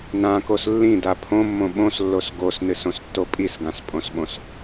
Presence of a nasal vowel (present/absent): present